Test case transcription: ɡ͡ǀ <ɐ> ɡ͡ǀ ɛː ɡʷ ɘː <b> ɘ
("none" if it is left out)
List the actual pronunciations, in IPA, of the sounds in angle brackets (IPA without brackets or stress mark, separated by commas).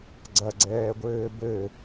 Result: ɐ, b